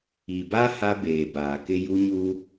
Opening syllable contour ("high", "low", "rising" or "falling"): low